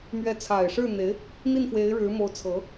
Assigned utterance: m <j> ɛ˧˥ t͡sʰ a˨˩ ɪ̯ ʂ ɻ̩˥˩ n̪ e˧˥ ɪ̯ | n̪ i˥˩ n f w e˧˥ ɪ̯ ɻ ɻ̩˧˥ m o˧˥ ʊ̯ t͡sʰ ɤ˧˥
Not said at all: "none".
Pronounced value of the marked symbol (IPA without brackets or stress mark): ɥ